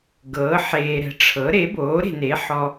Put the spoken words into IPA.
ɡɤː˩˥ħeː˨ɾɛ̤˩˥ ʈ͡ʂʰɤ˩˥ ɾe˩˥boː˩˥ɾe̤˨ne˩˥ ħɔ˨

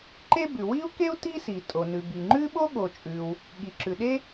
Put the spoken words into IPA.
ǃe˥bʉ˩ wi˥u̯ke˥u̯ ti˥si˩ tʼo˩nʉ˩bi˩ŋ͡ǃʉ˥ ɓo˥ɠo˩t͡ʃʼʉ˩w | ɠi˩ǁʉ˩ɗe˥

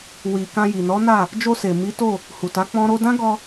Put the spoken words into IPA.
wi˨ kã˧ji˨nɔ˨˦na˦˨ | d͡ʒo˧se˨ mi˨˦to˦˨ | hu˨ta˨˦ k͡pɔ̃˦ɾo˦ dã˦ɡɔ˧

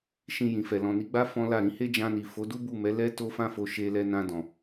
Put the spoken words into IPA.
ʃĩ˧ jĩ˨fɛ˨ lɔ̃˨ni˨˦ɡ͡ba˦ fɔ̃˦la˦˨ ɾĩ˨˦he˦d͡ʒã˧ni˨ fo˨˦du˦bu˦˨mɛ˨˦ lɛ˦ to˧fã˧fo˨ ʃe˧lɛ˧ nã˧dɔ̃˨

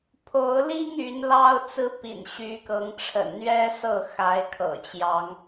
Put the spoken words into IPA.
pʰo˨˦ʊ̯ li˦ŋ y˨˦nlɑ˦ʊ̯ t͡sɹ̩˦pḭ˨˩nɕy˨˦kɤ˨˦ŋ ʈ͡ʂʰə̰˨˩nn̪ɥɛ˦sɤ˥˨ xa˨˦ɪ̯kʰɤ̰˨˩t͡ɕjɑ˨˦ŋ

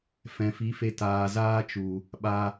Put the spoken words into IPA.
fɛ̃˨fi˨˦fe˧ taː˨zaː˦t͡ʃu˨ | ɓa˧

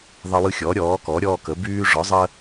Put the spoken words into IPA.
ðˤə˦wɯ˦xʲɔ˩˥ ɾʲɔː˩˥ kɔ˩˥ɾʲɔː˦kə˩˥ byː˦ʐɔ˩˥ zˤə˦

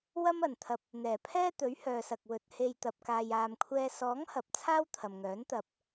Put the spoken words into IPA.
wɐ˥mɐ˨n t̪ʰɐ˨p̚ | n̪ɛː˨˩pʰɛː˥ t̪ɵ˨˥ɥhœː˨sɐ˨k̚ wɵ˨t̚ he˧j t̪ɐ˨p̚kaː˨jaː˨mkʷʰɛː˧ sɔː˨˥ŋhɐ˨p̚ t͡sʰaː˥wt̪ʰɐ˨mŋœː˨˥n t̪ɐ˧p̚

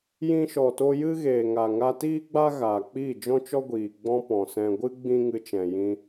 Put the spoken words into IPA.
jĩ˧ʃɔ˨to˧ jɨ˦ɣeː˨ŋa˨ ŋa˧tiː˦ɡ͡ba˦ ɣaː˨k͡piː˦˨d͡ʒɔ̃˦t͡ʃɔ˦ ɡʷiː˨ ɡ͡bɔ̃˦pɔ̃˨sɛ̃˧ ɡʷɨ˦ ɡ͡bĩ˦ŋɨ˧t͡ʃɛ̃˨ jĩ˧

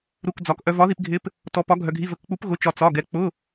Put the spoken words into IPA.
ɾu˧˥˧kd͡zɒ˧k ʔœ˧vɒ˧˥ði˧pɡʱɪ˧˥p | tɔ˧˥pɒ˧˥ɡʱœ˧ɡʱi˧˥˧ və˧kk͡pu˧˥p ɣʊ˧˥t͡ʃɒ˧ t͡sɒ˧˥˧ɡɛ˧˥ k͡pʊ˧˥˧

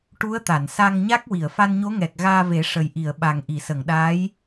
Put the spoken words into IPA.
ʈu˧˥ə̯t̪a˨˩˨nsa˧ŋɲa˦˥k̚ wi˨˩˨ə̯fa˧nɲo˧˥ŋɛ˨˩k̚ ɣaː˧ve˨˩˦ ʂə˨˩jʔi˨˩˨ə̯ɓa˨˩ŋ ʔi˨˩˨sə˨˩˨ŋɗaː˧˥j

